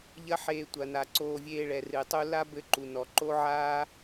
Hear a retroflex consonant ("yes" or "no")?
yes